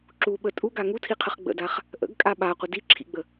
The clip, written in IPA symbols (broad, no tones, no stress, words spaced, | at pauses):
ǁuɓə tʼuɡa ŋutʰiqʰəχ ɡ͡bə̰daχ | ʔə̰ɡkʼa ɓaqʷə diǁʰḭɡ͡bə